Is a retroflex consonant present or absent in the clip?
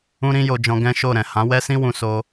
absent